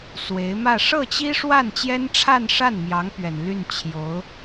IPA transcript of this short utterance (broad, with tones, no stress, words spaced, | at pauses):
swe˧˥ɪ̯mä˥˧ ʂɤ˥˩t͡ɕi˥ʂwa˥˩n t͡ɕjɛ˥nʈ͡ʂʰa˥˧nʂa˥˩nmjɑ˧˥ŋ pɥɛ˨˩nly˥˩n t͡ɕʰjo˧˥ʊ̯